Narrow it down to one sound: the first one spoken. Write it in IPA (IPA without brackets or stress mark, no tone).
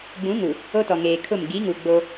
ɡ͡b